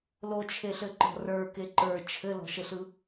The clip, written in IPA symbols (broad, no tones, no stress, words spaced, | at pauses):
lot͡ʃʰeɬɘǃɔ̤ rə˞ke ǃə˞ t͡ʃʰɘlɔ̤ʃɘɬɯ